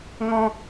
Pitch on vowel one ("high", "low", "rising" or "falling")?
low